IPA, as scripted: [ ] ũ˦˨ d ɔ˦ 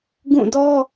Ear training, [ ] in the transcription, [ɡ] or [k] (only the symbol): ɡ